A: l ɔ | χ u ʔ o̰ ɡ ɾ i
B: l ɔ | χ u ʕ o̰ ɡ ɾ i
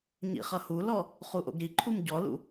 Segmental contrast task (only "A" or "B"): A